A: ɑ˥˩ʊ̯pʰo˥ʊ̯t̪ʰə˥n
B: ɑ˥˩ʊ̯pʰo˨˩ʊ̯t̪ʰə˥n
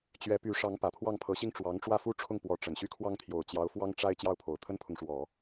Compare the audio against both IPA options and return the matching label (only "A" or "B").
B